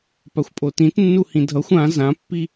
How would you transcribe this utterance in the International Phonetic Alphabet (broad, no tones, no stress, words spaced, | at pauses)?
paxʷpʼotĩt nːuhĩdʱʌxʷ ã zãpːi